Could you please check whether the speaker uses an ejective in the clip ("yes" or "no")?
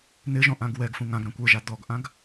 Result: no